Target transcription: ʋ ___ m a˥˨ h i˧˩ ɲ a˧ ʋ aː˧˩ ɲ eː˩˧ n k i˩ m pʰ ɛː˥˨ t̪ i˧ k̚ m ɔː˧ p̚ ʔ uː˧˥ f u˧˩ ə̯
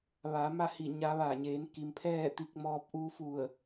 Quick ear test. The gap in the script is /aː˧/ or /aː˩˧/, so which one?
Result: aː˩˧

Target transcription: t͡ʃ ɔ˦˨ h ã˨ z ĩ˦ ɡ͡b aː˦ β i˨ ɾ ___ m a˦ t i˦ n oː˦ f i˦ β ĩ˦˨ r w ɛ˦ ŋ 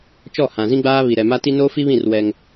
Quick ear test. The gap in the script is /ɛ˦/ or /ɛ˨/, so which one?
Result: ɛ˨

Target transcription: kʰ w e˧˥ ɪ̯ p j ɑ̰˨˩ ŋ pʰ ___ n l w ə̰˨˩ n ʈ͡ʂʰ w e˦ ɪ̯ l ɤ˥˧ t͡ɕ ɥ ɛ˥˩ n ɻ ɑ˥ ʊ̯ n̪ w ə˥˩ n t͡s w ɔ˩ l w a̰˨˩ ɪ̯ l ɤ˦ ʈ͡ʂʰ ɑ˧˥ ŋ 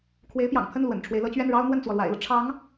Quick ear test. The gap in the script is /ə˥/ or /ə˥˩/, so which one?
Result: ə˥˩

